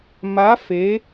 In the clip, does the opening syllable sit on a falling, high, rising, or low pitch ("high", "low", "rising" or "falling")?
rising